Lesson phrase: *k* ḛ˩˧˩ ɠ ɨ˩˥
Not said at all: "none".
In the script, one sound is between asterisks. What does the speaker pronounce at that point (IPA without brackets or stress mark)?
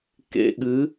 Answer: k